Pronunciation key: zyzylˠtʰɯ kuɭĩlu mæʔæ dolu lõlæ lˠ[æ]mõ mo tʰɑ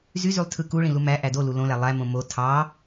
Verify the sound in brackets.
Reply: correct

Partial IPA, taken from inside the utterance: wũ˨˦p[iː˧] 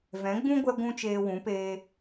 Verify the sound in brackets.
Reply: incorrect: eː˧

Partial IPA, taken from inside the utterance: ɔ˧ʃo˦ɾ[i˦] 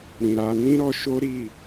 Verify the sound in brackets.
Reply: incorrect: i˦˨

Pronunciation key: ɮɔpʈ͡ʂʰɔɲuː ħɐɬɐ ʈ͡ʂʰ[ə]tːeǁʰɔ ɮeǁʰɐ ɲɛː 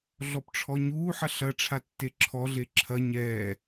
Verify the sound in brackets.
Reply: incorrect: a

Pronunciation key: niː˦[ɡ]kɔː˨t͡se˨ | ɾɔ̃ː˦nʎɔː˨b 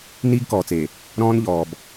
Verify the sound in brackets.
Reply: correct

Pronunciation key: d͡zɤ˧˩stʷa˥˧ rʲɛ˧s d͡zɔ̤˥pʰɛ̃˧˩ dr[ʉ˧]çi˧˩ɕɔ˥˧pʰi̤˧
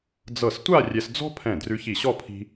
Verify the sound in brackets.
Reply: correct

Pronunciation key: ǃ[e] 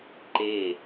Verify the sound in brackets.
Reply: correct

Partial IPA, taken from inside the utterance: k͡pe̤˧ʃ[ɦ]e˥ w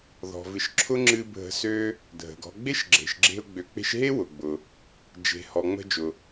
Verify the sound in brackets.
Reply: correct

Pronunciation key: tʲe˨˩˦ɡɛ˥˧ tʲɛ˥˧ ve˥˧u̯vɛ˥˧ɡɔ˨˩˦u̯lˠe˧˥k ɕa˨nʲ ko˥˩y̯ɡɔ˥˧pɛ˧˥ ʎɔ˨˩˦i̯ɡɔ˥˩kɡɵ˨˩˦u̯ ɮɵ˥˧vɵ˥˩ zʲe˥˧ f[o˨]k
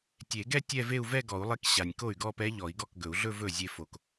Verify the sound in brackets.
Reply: correct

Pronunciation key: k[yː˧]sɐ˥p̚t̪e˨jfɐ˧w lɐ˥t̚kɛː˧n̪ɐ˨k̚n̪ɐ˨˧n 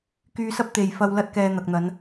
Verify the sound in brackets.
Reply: correct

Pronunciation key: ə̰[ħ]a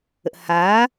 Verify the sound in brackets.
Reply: incorrect: h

